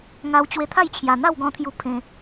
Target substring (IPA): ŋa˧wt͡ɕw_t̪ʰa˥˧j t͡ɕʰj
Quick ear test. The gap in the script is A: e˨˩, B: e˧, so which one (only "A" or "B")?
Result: B